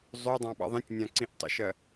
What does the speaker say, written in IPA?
zˤødˤɑ̃ ɓɑ̰ðˤĩtʲnʲã ǀĩʔtˤə̰ʃɜ

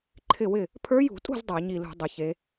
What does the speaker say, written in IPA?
ǃʰɪ˥˩wɪ˥˩ | pʰə˞˧˥jṳ˧˩˧tʼṳ˥˩z dˤa˧˩˧ɲi˧˩lṳ˧˩˧ dˤɪ˩˧çe˩˧

